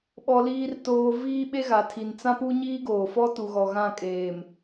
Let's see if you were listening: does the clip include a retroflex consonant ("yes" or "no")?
no